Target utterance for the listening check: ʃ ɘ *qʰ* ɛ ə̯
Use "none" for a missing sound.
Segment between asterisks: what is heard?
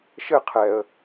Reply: qʰ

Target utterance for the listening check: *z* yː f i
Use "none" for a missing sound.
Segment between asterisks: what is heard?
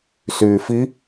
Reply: s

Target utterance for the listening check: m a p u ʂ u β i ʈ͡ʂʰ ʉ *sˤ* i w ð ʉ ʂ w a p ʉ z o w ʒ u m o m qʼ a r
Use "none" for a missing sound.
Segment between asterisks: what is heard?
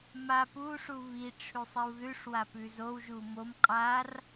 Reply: sˤ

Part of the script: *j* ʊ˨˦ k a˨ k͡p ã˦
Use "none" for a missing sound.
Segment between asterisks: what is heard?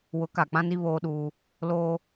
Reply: w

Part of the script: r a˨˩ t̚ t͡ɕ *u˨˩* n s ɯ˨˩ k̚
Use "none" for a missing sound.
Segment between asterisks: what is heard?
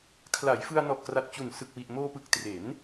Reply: u˨˩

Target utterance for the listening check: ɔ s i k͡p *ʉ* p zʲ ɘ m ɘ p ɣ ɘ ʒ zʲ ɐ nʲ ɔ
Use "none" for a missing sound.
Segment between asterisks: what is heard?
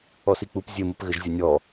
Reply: u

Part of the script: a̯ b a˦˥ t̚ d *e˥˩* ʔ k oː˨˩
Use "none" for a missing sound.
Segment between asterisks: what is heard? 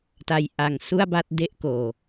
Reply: e˥˩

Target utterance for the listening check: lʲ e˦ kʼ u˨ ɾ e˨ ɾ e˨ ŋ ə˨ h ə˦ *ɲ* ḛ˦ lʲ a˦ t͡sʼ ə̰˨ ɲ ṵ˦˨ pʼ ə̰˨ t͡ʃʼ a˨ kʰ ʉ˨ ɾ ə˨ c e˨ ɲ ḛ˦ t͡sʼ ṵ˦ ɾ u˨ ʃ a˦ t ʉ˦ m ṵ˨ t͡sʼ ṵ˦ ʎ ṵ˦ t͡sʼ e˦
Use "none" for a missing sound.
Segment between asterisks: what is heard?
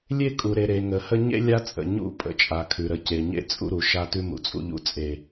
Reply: ɲ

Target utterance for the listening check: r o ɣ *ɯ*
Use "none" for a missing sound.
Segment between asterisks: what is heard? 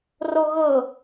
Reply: ɤ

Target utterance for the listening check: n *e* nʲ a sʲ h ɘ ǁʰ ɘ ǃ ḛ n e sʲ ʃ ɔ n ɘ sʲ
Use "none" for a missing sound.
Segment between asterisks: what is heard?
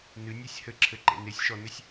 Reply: ɨ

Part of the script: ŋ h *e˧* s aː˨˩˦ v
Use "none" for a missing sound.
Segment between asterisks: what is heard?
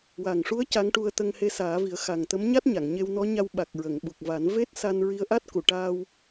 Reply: e˧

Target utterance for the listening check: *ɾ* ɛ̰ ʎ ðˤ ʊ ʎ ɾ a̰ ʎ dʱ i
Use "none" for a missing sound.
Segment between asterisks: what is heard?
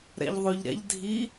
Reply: ɾ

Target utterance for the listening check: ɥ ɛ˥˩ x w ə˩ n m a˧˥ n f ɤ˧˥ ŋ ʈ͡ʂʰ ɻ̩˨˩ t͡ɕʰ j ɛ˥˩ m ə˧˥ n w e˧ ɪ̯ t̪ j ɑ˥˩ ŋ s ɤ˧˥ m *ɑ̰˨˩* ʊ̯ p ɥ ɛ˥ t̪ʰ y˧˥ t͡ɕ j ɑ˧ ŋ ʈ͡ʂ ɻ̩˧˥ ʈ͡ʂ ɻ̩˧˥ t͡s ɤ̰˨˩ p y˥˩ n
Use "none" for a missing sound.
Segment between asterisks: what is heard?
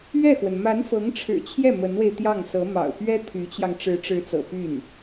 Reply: ɑ̰˨˩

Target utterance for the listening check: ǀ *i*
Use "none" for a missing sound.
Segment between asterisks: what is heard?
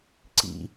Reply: ḭ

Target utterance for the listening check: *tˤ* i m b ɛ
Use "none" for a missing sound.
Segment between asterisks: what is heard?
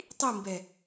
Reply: tˤ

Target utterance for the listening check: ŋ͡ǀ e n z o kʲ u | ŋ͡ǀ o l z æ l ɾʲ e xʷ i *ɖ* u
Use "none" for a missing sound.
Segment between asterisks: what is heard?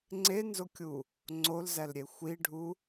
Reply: ɖʱ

